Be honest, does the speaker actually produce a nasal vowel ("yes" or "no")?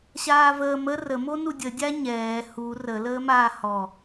no